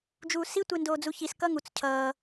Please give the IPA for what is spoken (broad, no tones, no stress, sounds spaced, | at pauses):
d͡ʒ uː s i tʷ e n d oː d͡z u ç i s k ʌ ŋ u t͡s cʰ ʌː